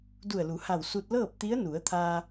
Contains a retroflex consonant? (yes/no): no